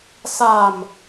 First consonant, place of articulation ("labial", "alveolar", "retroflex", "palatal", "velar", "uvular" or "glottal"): alveolar